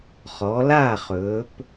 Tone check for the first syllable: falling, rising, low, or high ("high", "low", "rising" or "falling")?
rising